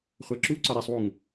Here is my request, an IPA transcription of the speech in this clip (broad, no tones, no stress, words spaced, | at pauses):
χʷæǁuǀɒ ɾisˤwuŋ